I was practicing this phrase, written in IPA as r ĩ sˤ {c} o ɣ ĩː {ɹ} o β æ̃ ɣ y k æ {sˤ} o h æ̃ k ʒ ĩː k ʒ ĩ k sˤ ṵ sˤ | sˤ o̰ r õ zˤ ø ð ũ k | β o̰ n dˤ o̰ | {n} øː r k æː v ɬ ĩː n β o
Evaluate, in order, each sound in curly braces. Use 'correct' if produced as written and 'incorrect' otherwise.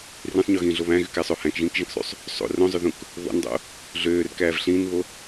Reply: incorrect, incorrect, correct, incorrect

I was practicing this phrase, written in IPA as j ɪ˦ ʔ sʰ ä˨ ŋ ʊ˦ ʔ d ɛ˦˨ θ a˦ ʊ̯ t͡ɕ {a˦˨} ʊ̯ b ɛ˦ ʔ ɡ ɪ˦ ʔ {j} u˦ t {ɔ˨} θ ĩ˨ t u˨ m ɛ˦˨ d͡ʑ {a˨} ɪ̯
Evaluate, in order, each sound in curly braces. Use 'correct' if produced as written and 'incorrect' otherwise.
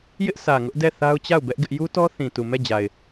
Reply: correct, correct, incorrect, correct

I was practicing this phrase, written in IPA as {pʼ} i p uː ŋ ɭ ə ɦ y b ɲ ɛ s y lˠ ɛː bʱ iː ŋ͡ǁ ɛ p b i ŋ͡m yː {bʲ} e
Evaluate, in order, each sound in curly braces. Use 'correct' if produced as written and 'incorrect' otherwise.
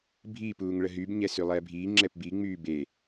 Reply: incorrect, incorrect

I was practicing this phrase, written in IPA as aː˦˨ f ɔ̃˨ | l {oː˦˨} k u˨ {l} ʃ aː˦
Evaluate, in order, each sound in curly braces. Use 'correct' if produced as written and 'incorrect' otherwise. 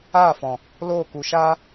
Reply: correct, incorrect

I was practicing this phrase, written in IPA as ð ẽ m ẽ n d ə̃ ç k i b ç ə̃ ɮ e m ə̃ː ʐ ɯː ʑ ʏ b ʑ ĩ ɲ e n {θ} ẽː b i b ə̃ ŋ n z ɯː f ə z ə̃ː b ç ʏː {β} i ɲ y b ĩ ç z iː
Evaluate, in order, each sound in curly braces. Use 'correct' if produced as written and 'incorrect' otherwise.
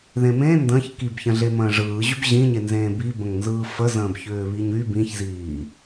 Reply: incorrect, correct

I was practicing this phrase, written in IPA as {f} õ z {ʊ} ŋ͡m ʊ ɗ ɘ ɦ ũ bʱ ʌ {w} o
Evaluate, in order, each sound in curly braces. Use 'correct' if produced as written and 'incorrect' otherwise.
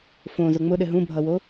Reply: correct, correct, correct

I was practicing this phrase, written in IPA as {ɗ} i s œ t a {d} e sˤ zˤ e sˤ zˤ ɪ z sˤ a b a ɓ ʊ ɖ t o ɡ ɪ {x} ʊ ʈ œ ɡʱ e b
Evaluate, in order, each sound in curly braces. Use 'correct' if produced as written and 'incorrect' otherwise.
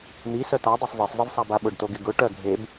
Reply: incorrect, incorrect, incorrect

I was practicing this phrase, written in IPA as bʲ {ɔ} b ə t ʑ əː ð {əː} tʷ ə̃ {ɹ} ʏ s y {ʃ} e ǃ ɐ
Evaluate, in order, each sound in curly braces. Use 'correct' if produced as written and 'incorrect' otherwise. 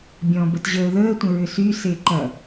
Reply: incorrect, correct, correct, incorrect

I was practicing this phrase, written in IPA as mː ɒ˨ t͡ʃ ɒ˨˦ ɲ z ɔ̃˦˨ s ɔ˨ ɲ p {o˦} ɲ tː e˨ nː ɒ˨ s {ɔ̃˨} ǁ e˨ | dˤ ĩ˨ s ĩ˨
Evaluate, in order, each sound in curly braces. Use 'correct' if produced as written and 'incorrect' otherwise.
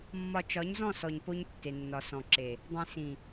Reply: correct, correct

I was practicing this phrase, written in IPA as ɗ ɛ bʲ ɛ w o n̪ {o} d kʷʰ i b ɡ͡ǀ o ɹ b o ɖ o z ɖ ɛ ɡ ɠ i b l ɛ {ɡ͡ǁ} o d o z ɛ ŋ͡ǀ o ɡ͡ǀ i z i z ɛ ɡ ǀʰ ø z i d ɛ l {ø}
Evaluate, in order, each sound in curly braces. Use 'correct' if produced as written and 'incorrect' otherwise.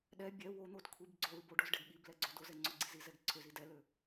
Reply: correct, incorrect, correct

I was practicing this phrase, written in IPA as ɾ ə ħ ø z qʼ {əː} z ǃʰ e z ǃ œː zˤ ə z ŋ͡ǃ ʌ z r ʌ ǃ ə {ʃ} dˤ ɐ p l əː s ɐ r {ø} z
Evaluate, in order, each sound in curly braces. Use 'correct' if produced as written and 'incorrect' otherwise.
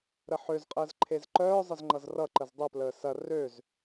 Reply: correct, incorrect, correct

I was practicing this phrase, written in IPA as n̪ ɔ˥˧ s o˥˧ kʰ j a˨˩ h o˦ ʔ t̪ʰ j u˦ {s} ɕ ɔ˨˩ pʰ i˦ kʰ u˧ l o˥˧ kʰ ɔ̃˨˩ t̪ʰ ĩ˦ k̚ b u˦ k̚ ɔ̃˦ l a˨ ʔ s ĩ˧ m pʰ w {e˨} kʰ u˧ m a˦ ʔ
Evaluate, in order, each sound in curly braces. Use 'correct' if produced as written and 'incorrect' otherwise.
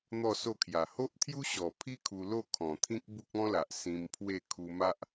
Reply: incorrect, incorrect

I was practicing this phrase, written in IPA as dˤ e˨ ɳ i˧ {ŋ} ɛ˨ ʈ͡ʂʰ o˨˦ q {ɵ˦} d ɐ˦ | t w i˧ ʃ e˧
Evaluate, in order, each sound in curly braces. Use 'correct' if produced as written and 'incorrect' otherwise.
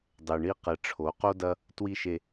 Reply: incorrect, incorrect

